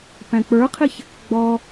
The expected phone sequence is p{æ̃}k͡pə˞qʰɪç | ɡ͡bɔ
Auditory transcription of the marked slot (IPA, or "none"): æ̃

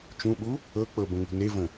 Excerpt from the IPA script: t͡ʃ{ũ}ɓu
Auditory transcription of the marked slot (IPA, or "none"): ũ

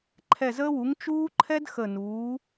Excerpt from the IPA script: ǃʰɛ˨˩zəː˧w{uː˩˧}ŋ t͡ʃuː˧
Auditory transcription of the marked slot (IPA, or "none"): u˩˧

